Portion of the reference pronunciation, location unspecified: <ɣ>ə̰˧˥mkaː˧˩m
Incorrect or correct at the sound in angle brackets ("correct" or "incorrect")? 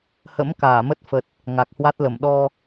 incorrect